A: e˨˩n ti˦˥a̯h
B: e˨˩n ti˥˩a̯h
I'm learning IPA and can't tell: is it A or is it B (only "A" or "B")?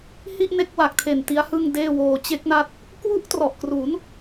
A